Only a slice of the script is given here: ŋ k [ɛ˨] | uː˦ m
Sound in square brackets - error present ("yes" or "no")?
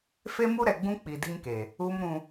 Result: yes